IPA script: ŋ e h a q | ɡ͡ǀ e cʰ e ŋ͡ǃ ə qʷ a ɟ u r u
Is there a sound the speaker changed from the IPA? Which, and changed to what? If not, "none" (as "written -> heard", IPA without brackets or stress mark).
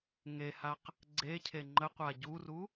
none